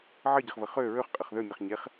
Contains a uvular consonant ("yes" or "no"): yes